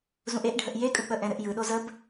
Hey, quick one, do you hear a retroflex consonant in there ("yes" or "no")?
yes